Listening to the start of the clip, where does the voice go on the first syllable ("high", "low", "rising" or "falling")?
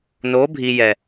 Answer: rising